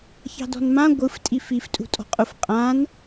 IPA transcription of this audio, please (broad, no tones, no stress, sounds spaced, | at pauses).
ç ɑ̤ d ɔ̤ n m ã ɡʷ ɯ f tʼ i f i f tʼ ṳ tʼ ɔ̤ qʼ ʊ f qʼ ã n